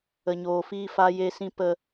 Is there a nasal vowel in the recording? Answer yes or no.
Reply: yes